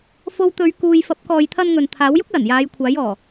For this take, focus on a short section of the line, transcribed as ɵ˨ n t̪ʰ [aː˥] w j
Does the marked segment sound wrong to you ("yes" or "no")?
yes